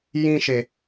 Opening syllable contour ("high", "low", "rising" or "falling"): high